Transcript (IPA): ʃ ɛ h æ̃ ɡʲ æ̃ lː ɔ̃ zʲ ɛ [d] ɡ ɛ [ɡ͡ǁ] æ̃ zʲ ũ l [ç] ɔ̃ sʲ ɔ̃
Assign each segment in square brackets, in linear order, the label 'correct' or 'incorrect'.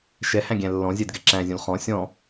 correct, incorrect: ǁ, incorrect: χ

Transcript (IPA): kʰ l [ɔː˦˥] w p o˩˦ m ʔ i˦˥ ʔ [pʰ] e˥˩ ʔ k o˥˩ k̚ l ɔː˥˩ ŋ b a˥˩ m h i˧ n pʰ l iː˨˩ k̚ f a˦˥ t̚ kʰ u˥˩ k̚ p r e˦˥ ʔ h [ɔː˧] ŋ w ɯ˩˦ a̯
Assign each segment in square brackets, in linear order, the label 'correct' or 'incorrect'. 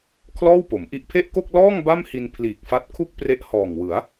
incorrect: ɔː˥˩, correct, incorrect: ɔː˨˩

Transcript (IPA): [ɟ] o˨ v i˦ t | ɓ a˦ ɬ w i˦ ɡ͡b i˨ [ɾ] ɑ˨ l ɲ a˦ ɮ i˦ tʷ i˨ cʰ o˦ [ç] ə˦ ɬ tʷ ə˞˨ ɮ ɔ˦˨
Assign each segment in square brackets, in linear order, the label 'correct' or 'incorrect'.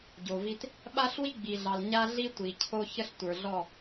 correct, incorrect: ɮ, correct

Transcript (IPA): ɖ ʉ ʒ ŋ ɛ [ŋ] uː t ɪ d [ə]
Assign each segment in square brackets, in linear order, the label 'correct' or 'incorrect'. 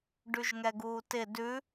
incorrect: ɡ, incorrect: ʉ

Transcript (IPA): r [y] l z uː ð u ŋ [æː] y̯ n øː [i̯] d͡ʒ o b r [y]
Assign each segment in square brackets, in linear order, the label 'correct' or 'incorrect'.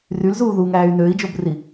correct, correct, correct, incorrect: i

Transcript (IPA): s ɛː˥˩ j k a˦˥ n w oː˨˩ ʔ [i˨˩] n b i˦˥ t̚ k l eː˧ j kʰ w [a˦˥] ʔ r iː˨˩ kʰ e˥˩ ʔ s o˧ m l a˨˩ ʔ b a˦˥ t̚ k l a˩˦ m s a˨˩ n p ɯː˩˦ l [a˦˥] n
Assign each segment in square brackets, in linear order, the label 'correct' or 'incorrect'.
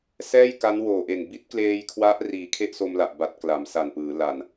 incorrect: e˨˩, correct, incorrect: a˨˩

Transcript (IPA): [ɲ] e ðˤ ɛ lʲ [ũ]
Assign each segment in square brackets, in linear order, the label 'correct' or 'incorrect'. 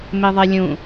incorrect: m, correct

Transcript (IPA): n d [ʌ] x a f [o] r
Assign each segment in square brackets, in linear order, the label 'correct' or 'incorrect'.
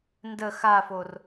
incorrect: ə, correct

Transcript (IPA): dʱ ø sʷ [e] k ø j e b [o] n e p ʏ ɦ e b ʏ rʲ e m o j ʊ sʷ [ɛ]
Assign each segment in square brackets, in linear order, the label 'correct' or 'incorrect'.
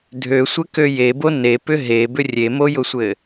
incorrect: ɘ, correct, incorrect: ɘ

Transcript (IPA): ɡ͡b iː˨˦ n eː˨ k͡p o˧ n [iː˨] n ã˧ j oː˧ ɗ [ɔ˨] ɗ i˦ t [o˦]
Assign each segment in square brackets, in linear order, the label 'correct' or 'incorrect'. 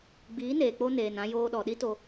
incorrect: eː˨, correct, incorrect: o˧

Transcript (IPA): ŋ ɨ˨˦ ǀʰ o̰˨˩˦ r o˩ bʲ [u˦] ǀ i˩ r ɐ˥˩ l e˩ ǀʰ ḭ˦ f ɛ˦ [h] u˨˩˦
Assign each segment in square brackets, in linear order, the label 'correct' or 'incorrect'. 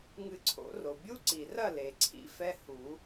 correct, correct

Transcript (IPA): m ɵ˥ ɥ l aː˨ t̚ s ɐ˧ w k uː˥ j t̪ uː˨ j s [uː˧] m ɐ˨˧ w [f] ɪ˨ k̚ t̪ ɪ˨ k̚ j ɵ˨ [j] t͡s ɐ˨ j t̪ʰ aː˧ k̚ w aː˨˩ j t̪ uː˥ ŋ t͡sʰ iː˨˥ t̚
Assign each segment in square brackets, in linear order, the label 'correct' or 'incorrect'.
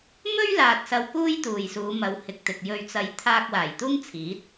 incorrect: uː˨˧, incorrect: h, incorrect: ɥ

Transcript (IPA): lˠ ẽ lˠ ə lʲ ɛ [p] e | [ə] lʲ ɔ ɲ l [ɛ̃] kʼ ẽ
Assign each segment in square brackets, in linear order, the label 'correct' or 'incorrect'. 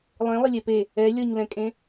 correct, incorrect: ɛ, correct

